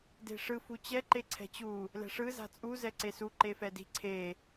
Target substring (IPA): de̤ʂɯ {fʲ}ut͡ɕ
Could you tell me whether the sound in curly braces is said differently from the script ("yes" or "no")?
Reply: yes